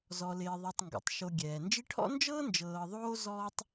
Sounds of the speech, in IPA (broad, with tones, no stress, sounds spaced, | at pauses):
z ɔ˨ l ɪː˨ ðˤ ɛ˨ tˤ ŋ ɡ o̰˩ tˤ ʃ o˨ ɡʲ ɛː˩ n d͡ʒ i˦ ʈʰ ɔ̰˥ n d͡ʒ ɤː˥ n d͡ʒ ɤː˨ ðˤ oː˦ z ɔː˦ tˤ